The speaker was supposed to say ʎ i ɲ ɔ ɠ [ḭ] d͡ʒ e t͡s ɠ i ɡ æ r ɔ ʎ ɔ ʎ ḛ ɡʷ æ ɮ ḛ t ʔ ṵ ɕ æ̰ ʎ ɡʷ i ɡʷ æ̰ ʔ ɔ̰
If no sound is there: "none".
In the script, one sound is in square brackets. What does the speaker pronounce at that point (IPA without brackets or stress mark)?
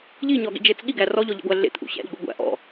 ḭ